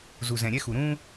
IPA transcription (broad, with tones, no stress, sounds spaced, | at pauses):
z u˨ z ɛ̃˨ ɾʲ ɛ˦ x u˨ ɾ ũː˦